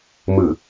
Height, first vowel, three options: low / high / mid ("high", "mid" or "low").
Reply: high